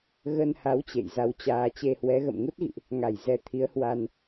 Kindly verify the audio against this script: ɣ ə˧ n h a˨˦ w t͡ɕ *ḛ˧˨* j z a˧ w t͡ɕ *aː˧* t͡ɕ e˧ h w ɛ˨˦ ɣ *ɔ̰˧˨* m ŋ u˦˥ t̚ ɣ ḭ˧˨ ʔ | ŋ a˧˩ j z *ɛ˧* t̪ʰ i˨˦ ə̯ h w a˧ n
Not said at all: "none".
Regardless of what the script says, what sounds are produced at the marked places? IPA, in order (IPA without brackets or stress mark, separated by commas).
ḛ˧˨, aː˧, ə̰˧˨, ɛ˧